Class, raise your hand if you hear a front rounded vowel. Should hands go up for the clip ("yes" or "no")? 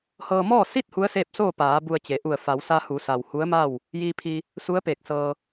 no